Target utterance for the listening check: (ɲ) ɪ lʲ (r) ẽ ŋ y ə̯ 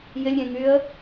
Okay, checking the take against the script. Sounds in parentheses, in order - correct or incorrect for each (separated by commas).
incorrect, incorrect